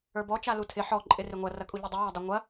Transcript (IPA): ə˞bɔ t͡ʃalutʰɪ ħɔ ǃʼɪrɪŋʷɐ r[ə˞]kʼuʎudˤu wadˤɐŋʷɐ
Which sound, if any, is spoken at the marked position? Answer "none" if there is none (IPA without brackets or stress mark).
ɐ